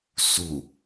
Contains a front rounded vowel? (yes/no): no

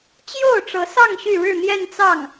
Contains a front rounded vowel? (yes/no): yes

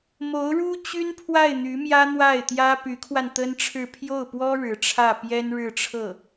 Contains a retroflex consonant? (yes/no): yes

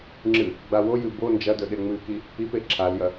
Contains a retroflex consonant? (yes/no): no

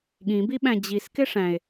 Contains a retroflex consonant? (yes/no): yes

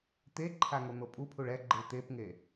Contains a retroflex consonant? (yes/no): yes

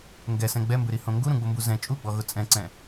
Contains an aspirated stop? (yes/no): no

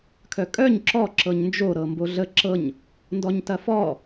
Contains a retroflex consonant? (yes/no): no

